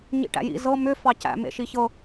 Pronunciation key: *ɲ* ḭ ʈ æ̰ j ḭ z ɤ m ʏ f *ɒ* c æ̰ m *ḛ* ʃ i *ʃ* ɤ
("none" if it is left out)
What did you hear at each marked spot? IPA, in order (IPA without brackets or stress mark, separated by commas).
ɲ, ɑ, ḛ, ç